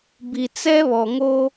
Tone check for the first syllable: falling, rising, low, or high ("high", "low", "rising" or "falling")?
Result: low